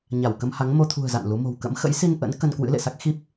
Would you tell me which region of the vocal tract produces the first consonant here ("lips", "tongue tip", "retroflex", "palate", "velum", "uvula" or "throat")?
palate